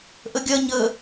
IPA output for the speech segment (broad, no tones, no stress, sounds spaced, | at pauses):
ʔ ə ɡʲ ɐ ɲ ə